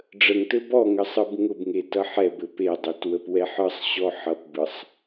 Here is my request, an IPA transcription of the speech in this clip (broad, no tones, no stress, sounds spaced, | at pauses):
ɖ͡ʐ ə ŋ t ɘ b ɔ ŋ ə sˤ ɯ b ŋ ʊ b ŋ e t ʌ ħ ɛ b ɘ p e dˤ ɘ t w ə p w ɛ ħ ɯ sˤ ɕ ɔ ħ ʌ p b ɯ sˤ